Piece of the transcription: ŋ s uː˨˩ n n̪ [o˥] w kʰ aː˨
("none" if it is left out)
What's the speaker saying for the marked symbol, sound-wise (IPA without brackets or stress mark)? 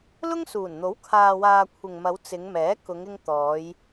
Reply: o˨˥